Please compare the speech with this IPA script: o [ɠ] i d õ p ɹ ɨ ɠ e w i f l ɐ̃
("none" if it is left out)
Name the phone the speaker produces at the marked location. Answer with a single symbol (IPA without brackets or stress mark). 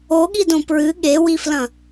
ɠ